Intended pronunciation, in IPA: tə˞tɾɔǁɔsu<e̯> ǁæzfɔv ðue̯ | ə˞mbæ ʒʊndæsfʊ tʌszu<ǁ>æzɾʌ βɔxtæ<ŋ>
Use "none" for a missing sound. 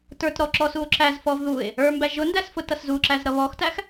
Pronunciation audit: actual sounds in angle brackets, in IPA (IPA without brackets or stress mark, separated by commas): o̯, ǁ, x